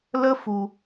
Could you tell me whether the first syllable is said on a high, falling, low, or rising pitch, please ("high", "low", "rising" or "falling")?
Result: high